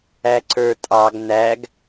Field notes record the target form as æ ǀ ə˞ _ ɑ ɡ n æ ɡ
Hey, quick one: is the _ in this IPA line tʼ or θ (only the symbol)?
tʼ